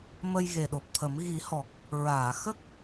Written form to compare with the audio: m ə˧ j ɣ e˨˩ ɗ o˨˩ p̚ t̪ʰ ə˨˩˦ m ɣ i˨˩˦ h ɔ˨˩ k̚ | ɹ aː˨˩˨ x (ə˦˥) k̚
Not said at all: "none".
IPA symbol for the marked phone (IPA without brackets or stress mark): ə˦˥